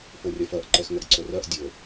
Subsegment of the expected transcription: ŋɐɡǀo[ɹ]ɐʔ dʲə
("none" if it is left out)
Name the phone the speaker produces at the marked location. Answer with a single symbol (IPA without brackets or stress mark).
r